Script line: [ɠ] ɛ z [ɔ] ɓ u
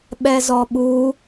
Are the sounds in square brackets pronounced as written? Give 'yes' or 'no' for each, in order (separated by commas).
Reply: no, yes